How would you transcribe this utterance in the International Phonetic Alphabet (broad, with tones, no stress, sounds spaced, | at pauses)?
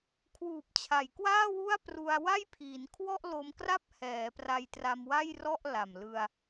kʰ w uː˨˩ p̚ t͡ɕʰ a˩˦ j k w aː˥˩ w u˥˩ a̯ p r u˧ a̯ w a˥˩ j pʰ iː˩˦ n kʰ w ɔ˥˩ ʔ l o˧ m k r a˥˩ p̚ h ɛː˩˦ p r a˧ j t r a˧ m w a˥˩ j r ɔ˥˩ ʔ l a˨˩ m l ɯ˧ a̯